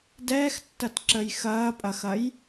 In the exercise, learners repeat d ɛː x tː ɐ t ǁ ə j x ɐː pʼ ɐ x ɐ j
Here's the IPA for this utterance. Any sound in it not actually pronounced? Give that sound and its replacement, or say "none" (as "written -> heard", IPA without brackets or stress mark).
none